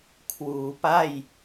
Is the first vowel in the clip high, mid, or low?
high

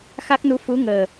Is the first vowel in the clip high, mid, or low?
low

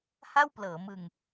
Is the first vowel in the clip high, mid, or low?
low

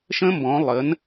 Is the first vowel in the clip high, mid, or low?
mid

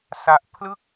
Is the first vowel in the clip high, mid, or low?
low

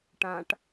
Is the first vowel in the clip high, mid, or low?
low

